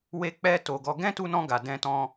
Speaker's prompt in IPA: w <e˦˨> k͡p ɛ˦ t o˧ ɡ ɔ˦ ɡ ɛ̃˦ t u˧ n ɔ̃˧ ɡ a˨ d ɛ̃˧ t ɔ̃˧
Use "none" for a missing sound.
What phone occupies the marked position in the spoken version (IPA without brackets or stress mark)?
e˦